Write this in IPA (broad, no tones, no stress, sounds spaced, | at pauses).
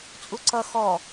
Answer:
t͡sʼ u ǀ ʌ x ɔ